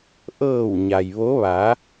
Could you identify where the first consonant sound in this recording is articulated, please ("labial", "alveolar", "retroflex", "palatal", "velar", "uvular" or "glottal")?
glottal